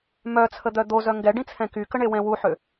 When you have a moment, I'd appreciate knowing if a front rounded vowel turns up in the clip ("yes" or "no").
yes